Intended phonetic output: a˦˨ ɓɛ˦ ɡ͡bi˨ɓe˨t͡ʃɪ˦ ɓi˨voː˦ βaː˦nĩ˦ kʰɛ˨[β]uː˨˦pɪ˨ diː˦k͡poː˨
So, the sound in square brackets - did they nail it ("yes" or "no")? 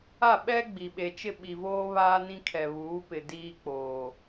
yes